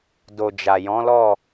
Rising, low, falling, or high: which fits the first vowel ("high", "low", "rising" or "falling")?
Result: low